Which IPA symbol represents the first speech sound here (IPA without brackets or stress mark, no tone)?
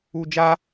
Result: u